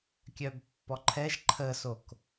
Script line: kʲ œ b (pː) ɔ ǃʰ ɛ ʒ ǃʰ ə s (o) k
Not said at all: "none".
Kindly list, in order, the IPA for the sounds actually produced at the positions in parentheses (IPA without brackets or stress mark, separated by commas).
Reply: pː, o